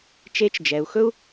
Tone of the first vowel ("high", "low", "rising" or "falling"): rising